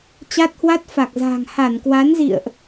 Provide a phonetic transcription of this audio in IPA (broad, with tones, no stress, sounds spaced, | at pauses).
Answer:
t͡ɕ a˦˥ t̚ h w a˦˥ t̚ f a˨˩ k̚ z a̤˨˩ ŋ h a˧˩ n k w a˨˦ n z ḭ˧˨ ə̯ ʔ